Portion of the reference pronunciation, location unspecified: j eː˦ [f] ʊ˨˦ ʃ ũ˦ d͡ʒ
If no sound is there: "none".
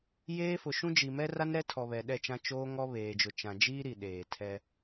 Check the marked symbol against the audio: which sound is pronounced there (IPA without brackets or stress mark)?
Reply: f